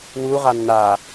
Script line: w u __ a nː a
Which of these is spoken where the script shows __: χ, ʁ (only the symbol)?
ʁ